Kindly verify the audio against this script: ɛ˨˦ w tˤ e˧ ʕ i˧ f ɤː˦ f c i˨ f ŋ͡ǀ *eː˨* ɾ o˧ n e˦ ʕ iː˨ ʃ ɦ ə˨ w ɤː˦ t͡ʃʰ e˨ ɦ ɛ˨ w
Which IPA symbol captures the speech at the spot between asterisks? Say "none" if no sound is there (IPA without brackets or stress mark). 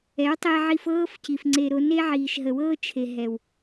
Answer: e˨